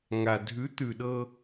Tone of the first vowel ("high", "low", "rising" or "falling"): low